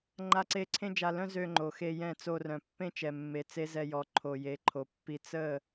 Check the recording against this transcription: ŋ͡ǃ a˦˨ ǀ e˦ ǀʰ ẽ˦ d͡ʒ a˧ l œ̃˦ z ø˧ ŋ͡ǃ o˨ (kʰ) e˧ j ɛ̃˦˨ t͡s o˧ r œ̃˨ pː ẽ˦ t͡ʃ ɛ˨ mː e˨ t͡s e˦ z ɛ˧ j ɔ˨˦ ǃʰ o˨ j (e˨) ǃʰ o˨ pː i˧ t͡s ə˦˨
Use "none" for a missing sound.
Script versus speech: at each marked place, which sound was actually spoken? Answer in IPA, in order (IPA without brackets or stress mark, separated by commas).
x, e˨˦